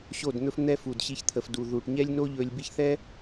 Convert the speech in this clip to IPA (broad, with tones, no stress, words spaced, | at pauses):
ɕo˦˨dn̪ɵ˦f n̪ɛ˦fu˨dɕi˧çt̪ʰə˨f du˨ ðu˨ʈɲɛ˦lʲno˦ʎɵ˧lʲ bi˦ç θɛ˦